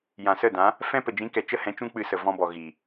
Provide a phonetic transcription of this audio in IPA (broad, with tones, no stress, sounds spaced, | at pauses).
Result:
j ã˨ s ə˦˨ d ã˨˦ | f ɛ̃˦ p ə˨ d͡ʒ ĩ˨˦ k ɛ˨ t͡ʃ ə˦ h ɛ̃˨˦ t͡ʃ ũ˦ k͡p ɨ˧ s ə˨ v ɔ̃˧ b ɔ˨ ɣ i˨